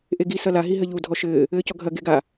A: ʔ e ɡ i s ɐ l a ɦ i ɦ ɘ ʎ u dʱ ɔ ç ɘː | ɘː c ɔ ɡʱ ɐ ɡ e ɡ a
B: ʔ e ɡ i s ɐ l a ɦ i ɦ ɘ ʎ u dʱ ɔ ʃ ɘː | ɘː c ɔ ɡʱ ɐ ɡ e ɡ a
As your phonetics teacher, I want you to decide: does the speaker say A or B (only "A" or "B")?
B